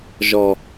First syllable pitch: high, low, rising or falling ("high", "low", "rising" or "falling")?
low